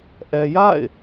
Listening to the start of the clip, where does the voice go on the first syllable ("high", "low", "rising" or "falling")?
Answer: low